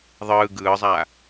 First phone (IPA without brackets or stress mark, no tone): ðˤ